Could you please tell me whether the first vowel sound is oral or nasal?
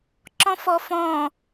nasal